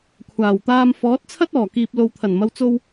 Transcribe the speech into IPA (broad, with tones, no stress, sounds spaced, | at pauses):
kʷʰ aː˨˩ w t̪ aː˧ m f ɔː˨˥ t̚ t͡sʰ ɐ˥ t̚ ɔː˨˩ k iː˨ p̚ l o˨ w t̪ʰ ɐ˨˩ n m ɐ˨ w t͡s o˧ w